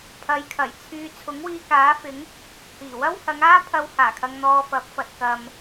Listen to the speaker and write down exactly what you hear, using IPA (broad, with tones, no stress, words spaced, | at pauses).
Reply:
pʰɐ˨˧jkʰɐ˨˩jt͡sʰyː˧ t͡sʰʊ˨˥ŋwiː˧kaː˨˥fɪ˨˥ŋ | hiː˨˩wɐ˥whɐ˨˧ŋaː˥ pʰɐ˧whaː˨˩kʰɐ˨ŋn̪ɔː˨ fɐ˨˥p̚fɐ˨t̚ kɐ˨m